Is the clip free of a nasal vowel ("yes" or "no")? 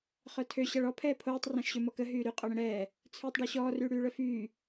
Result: no